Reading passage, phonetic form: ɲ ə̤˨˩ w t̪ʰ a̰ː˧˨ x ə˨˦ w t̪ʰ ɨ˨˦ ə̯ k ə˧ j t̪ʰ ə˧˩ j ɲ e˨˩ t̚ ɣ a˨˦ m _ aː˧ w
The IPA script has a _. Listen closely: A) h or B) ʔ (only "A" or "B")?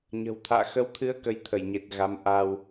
B